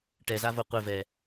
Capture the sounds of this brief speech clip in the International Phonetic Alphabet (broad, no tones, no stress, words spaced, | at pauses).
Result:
ʈɛzavo qʷɘvɛ